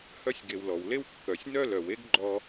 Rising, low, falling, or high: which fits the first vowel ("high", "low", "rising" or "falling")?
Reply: high